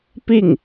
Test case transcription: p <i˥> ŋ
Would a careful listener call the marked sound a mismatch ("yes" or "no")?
yes